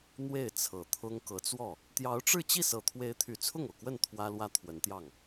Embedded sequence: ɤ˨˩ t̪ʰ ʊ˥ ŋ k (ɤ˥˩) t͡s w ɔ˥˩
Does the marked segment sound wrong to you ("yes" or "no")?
yes